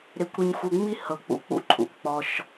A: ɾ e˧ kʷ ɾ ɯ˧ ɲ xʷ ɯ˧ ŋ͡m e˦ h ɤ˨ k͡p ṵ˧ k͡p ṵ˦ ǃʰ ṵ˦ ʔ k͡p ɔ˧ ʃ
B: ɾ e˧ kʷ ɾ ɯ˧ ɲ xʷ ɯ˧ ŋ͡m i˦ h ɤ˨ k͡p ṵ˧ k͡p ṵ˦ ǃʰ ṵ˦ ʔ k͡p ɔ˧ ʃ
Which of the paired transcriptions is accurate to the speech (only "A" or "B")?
B